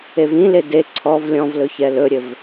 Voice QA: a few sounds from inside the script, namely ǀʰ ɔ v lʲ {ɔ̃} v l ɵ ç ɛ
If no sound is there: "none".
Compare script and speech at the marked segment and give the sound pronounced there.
ɔ̃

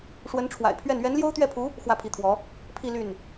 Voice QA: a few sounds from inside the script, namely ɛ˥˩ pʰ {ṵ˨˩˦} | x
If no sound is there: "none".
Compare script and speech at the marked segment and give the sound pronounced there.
u˧˥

